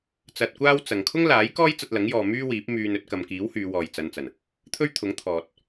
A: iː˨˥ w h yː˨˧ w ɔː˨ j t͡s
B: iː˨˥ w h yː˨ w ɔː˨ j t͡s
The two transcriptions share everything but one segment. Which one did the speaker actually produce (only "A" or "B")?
A